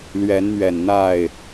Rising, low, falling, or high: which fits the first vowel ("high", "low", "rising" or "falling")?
rising